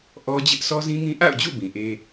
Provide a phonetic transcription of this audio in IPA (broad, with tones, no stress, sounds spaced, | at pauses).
ʔ ɔ˦ d͡ʑ ɪ˦ ʔ s ɔ˦ z ĩ˦ ŋ ĩ˦ ʔ a̰˦˨ ʊ̯ d͡ʑ ṵ˦˨ b ĩ˨ ʔ e˦